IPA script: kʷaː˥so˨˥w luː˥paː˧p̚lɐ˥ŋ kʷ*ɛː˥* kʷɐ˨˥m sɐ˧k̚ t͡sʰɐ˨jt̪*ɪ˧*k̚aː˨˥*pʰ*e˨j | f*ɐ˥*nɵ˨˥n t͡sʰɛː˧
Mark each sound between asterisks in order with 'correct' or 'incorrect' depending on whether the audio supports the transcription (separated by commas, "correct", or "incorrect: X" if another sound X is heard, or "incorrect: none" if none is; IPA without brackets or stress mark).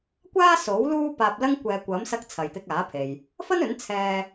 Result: incorrect: ɛː˨, correct, correct, correct